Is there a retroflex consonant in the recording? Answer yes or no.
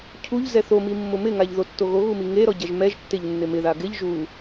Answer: no